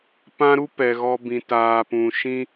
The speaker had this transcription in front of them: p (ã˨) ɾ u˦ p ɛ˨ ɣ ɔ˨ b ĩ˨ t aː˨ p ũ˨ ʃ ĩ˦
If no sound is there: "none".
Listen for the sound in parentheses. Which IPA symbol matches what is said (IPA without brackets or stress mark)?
ã˦